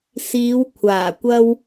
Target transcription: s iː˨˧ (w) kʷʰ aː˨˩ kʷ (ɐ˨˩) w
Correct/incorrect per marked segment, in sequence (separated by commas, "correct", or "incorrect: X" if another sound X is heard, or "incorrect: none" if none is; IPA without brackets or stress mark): correct, incorrect: ɐ˧